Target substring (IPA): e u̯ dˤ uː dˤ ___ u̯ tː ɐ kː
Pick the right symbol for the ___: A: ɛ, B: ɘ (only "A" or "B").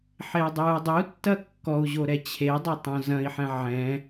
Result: B